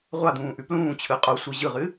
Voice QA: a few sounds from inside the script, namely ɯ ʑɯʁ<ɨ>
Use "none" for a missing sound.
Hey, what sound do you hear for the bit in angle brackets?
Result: ɨ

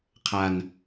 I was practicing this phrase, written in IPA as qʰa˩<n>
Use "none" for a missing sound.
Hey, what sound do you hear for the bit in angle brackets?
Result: n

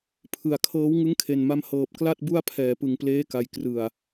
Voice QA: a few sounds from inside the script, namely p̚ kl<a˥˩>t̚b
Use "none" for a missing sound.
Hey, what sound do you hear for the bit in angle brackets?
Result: a˥˩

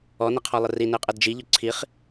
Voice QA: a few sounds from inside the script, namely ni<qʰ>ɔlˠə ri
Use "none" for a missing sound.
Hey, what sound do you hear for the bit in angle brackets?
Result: qʰ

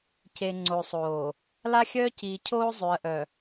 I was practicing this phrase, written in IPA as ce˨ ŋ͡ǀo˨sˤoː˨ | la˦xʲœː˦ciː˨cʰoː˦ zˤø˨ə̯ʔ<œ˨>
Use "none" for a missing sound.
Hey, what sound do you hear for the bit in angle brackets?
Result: œ˨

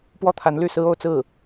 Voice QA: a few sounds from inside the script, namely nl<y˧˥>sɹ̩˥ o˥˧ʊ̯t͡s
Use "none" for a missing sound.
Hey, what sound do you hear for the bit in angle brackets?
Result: y˥˩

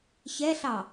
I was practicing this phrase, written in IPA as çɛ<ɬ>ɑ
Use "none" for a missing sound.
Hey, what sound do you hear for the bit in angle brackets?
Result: ɬ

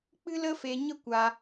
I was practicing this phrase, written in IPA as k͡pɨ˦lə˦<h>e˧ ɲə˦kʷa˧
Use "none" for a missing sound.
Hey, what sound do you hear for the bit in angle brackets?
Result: f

